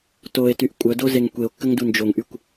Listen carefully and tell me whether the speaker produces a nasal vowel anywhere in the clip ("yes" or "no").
no